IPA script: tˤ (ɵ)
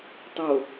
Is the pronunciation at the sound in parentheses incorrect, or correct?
incorrect